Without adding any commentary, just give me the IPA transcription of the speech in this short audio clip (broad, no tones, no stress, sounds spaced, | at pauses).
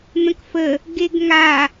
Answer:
n̪ ə̃ k f ə | ɡ e ɡ ŋ a